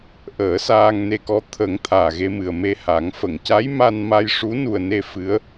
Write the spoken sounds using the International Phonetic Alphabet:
ʔəː˨˩˦saː˧ŋne˧kɔ˧˥ t̪ʰə˨˩˦ŋ t̪ʰaː˨˩ɣe˧mɨ˨˩ə̯me˧ ha˨˩˦ŋfə˨˩˨ŋ ca˧˥jma˧n ma˧jʂu˧˥nu˨˩ə̯ne˧ fɨ˧˥ə̯

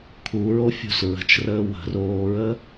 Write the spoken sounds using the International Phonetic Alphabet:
kʰuɹo fʲṳs ɹə̤t͡ʃrəː wə̤roːɹə

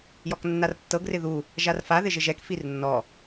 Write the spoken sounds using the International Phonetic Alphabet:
jɔknːartːɤ ɡrɪðu | ʒarfa ðɪʒɪʒɛk firnːɔ

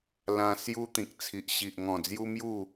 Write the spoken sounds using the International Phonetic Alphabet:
lã˧ sju˦t̪ĩ˨k̚ t͡sʰi˨ʔɕi˨ʔŋɔ̃˨˩d͡zju˦ mju˥˧

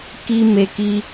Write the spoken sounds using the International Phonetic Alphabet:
ki˦me˦ki˦

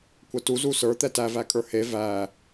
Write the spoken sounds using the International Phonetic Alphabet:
kʷətu zusə˞ t̪ɛtæ vækʼə˞he væ

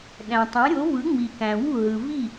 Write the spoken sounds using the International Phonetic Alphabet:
ɗæ̃˩ tˤæ̃˩˥ɾʲo˩˥vɯ˩˥ ŋ͡mi˩kæ̃˩wṳ˥˩ ɦɯ˩vi˥˩

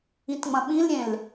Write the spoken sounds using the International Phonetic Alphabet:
ĩtŋ͡mɐ̃ɓĩlɾʲẽl

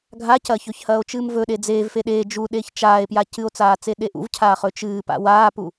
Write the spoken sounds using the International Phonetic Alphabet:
ɡʱacɐçɵç hɐːo̯t͡ʃɨːmvɵɗe d͡zeːvfe ɗeː d͡ʒu ɗeːçt͡ʃaːe̯pja cɨo̯t͡saːt͡se ɗeʔṵvcʰaː χɵt͡ʃɨː pa̰waːpu

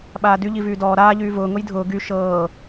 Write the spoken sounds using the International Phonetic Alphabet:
ɓaːdy ʎivyːdɔː ɾaːʎyː vʊː ŋʊjdʱʊː ɡy ʃɤː

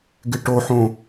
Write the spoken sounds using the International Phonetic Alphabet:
ɡɪʈoħõ

